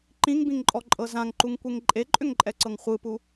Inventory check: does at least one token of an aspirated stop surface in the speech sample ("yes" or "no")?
no